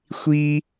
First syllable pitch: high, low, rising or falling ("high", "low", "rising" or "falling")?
high